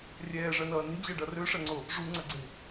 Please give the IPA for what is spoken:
rʲɛːʐɜnʌː ne̤d͡ʑɜɖʌ røʂɐŋ͡ǀo | ʐuŋ͡ǀʌɡ͡ǀe̤

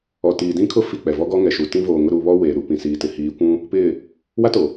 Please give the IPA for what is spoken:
ɔ˨tiː˨ dĩ˦kʰʊ˦ fi˦˨k͡pɛ˨ vɔ˦ɡɔ˦ŋɛ˨ʃu˨ tĩ˦voː˨ŋʊ˦ ɾu˨βɔ˦ weː˨ɾu˨ pĩ˨siː˨ tɪ˨hiː˨˦kʷũ˦ | pɪ˦˨ | wa˦to˨

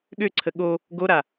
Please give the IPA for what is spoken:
ɠøǀʰə ɠo | ɡoɾa

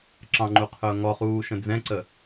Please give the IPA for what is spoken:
ǁɑ̃ŋ͡ǃuqʰʊː ŋɔχuːʃə̃ d͡zɛ̃ǀə

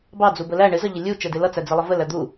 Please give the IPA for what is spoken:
bɑ d͡zubəlæ ɳɪ zʌʎɪlʲu t͡ʃɛdɪlʌ t͡sæd͡zɪlˠʌvə læd̪u

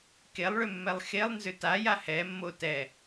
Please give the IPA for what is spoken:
kelˠɭʏmːɛlˠ xelˠnzʏ taja hɛmːo tɛ

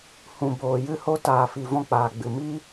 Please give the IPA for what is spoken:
hũ˨ boː˨jɨ˧ho˧ taː˨fi˨ vɔ̃˧k͡paː˨ɡ͡bɨ˨ miː˦

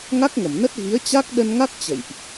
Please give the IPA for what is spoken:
ŋa˦˥k̚ŋə˧˩mnə˦˥t̚ ɣi˨˦ə̯t͡ɕa˦˥k̚ ɗə˧nŋa˦˥k̚ t͡ɕə̰˧˨jʔ

